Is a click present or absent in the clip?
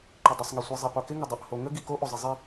present